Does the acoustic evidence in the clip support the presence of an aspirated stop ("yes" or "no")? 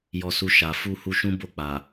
no